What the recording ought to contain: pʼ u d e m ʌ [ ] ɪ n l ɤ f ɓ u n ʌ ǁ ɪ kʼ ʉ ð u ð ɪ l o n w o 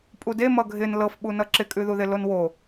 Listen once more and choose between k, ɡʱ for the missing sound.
ɡʱ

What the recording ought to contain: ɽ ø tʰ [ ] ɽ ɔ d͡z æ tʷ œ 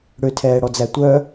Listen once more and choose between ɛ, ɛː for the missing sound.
ɛː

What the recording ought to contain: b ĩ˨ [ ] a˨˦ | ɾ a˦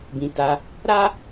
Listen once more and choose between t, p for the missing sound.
t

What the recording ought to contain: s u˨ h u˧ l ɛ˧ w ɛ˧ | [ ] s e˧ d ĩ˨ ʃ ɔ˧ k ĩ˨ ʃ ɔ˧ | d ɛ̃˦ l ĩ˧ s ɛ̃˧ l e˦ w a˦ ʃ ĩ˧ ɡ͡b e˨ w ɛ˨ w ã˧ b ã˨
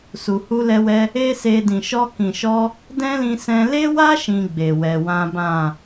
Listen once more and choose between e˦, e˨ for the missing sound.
e˦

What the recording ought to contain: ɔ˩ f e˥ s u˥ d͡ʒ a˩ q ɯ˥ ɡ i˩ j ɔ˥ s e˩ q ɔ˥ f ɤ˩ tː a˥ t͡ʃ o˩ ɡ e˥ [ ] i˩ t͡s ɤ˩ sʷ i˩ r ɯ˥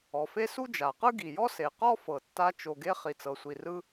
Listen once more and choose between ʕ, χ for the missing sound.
χ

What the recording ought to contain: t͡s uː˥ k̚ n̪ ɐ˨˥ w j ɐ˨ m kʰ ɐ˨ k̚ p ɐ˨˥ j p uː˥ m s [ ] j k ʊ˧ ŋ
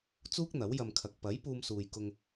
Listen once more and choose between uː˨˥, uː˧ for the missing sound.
uː˧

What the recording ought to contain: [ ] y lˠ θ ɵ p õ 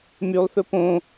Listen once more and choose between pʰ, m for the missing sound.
m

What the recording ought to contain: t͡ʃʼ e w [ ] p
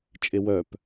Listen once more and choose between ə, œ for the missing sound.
œ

